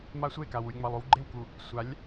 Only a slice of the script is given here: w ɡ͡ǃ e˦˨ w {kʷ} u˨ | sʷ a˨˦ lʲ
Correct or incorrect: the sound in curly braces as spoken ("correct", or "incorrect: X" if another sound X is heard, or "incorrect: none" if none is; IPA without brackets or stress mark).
incorrect: k